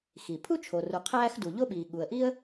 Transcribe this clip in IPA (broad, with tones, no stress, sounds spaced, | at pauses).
x i˩ pʰ u˥ t͡ʃʰ o˩ r u˩ qʰ æː˥ x d u˩ ʎ o˥ ɓ iː˩ ɠ u˩ ə̯ ʔ i˥ ə̯